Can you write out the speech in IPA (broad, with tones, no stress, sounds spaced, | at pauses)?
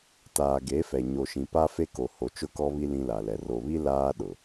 t aː˨ ɡ e˨˦ f ɛ˨ ɲ o˨ ʃ ĩ˨ p a˦ f e˦ k o˨ h o˨ t͡ʃ ʊ˦˨ k ɔ˦ β i˦ l ĩ˦ l a˨ l ɛ˨ r o˨ β i˦ l aː˦ ɗ ʊ˨